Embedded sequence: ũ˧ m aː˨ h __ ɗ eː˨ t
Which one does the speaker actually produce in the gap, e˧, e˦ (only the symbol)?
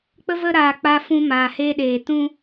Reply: e˧